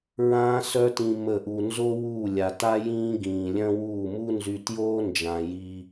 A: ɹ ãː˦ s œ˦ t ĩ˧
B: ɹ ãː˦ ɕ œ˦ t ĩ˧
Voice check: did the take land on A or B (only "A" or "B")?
A